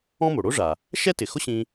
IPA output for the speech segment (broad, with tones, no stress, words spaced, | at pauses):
ɔ̃˥mo˩ ɽo˥ ʐa˩ | ʃɛ˥tɪ˩xʊ˥ ɕĩ˧